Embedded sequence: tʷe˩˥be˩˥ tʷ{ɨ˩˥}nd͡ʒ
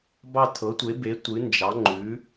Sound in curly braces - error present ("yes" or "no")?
no